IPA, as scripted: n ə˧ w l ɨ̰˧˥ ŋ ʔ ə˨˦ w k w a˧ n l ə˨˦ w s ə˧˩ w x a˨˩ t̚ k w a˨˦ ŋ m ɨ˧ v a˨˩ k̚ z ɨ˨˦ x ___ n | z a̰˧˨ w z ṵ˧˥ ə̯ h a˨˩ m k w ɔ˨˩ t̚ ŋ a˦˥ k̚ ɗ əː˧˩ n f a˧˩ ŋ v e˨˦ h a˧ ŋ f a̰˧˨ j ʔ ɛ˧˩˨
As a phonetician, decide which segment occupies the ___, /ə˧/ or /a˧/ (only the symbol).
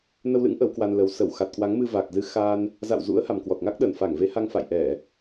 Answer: a˧